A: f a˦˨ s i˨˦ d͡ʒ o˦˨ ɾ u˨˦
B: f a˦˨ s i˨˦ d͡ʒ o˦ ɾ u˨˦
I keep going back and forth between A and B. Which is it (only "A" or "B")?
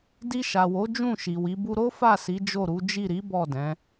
A